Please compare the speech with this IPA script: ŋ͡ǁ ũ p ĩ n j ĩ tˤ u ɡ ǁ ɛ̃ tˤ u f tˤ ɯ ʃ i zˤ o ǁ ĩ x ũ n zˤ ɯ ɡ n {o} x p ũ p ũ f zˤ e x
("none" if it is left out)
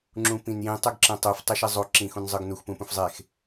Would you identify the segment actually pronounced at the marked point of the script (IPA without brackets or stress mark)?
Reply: u